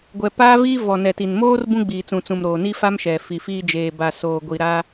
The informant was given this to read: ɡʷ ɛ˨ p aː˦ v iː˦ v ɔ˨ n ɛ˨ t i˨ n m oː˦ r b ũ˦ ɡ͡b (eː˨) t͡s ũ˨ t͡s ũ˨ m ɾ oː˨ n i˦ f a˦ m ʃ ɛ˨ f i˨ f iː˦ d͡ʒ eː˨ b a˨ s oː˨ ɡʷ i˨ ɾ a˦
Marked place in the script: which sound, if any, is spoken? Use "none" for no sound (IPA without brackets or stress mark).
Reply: iː˨